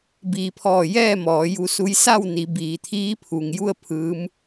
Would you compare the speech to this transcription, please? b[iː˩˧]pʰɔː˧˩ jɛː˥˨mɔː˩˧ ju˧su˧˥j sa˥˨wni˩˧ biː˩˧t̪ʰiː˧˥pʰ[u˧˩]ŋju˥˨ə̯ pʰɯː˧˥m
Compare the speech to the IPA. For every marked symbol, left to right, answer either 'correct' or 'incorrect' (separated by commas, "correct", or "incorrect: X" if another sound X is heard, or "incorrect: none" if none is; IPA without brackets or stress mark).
correct, incorrect: u˩